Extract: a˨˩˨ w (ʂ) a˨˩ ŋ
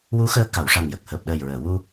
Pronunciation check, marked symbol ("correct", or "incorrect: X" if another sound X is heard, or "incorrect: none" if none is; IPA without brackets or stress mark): correct